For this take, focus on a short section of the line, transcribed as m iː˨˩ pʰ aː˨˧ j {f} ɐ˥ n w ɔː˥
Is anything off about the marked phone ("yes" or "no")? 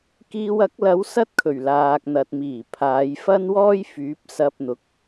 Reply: no